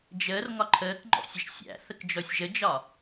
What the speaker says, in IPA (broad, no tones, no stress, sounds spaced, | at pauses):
d͡ʒ əː r ŋ ɒ ǃʰ əː k ŋ͡ǃ ɔ̰ sʲ ə ʃ sʲ æ̰ θ ə k d͡ʒ ɔ sʲ ʒ ə d͡ʒ ɒ